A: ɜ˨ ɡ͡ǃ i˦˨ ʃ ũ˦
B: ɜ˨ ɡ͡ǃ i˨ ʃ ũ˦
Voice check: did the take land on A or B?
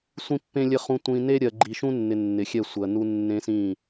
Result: B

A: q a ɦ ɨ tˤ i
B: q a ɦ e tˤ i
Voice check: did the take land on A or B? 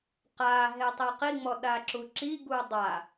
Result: B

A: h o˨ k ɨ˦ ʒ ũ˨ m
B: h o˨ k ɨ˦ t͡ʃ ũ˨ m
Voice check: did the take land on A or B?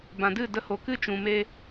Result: B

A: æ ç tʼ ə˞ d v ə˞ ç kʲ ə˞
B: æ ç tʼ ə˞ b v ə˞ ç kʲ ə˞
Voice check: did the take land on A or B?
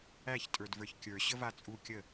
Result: A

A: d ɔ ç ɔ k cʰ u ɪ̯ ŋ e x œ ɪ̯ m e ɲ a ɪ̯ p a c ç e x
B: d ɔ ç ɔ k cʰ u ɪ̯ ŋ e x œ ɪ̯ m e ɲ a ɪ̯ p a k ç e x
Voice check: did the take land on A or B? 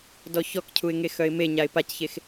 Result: A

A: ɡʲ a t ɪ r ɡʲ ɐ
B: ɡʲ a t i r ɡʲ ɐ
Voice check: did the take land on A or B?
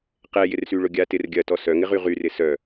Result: A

